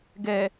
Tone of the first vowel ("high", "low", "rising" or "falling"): low